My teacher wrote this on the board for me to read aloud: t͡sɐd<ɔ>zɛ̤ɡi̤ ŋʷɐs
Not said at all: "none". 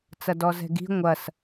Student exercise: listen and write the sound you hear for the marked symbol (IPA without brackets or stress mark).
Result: ɔ